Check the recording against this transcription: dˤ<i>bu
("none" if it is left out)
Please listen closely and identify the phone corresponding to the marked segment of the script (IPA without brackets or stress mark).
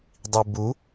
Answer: i